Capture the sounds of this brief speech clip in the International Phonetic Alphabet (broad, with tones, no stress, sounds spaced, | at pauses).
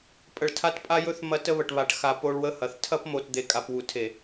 pʼ ə˨ ɭ tʰ a˦ t pʼ a˦ j ɵ˦ θ m ɐ˦ t ə˦ β ə˨ ʈ β a˨ ʈ x a˨ p o˦ ɭ w ə˦ h ɐ˨ θ tʰ ɐ˦ p m o˨ t d̪ e˨ kʼ a˨ p w u˨ tʰ e˨